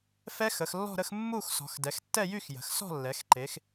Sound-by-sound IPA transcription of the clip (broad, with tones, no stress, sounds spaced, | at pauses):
f ɛ˦˥ x ə˩˧ x lː ɔ̤˥˧ ɾ ə˥˧ x mː u˥˧ x s ɔ̤˩˧ x d ɛ˩˧ x tː ɛ˥˧ j y˥˧ x j ə̤˩˧ x s ɔ̤˥˧ lː ɛ˩˧ x ǃ e˩˧ x